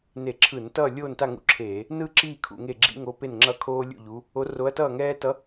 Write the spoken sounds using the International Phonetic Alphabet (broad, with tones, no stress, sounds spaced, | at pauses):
n e˧˩˧ ǁʰ ɯ˧˩˧ n t ʌː˥˨ lʲ oː˥˨ n t a˥˨ ŋ ṵ˧˥ ǁʰ eː˧˩˧ | n ɯ˥˨ ǁ iː˥˨ kʰ ṵ˧˩˧ ŋ e˥˨ ɡ͡ǁ ḭ˥ ŋ o˧˥ p e˥˨ n ŋ͡ǁ ʌ˥˨ kʰ oː˥ lʲ ṵ˥˨ ʎ u˧˥ | o˧˥ r o˧˥ ɐ̯ t ʌː˥˨ ŋ ɛː˥ t ʌ˧˥